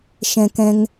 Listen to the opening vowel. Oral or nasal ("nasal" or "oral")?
nasal